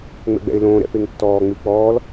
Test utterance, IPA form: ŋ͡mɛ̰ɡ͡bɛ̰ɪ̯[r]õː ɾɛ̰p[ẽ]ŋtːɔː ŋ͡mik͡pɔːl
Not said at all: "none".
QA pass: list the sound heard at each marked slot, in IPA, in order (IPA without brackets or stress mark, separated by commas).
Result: l, e